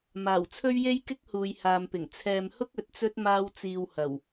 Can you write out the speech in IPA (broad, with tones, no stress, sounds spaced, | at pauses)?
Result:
m aː˨˩ w t͡sʰ ɵ˥ ɥ j e˥ j k ɪ˥ k̚ h uː˨ j h aː˨ m p ɪ˨˩ ŋ t͡sʰ ɛː˨ m h ʊ˥ k̚ ɵ˨ t̚ t͡s ɵ˥ t̚ m aː˥ w t͡s iː˧ w h ɐ˨˩ w